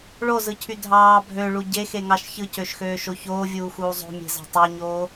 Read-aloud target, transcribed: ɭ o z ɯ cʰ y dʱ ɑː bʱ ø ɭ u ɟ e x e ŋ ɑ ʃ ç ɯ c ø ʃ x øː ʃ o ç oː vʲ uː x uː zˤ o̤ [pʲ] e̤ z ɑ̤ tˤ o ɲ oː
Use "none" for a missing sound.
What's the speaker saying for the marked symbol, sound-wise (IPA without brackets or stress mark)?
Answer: mʲ